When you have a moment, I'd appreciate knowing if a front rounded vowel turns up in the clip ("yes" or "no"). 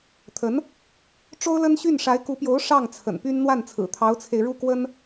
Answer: yes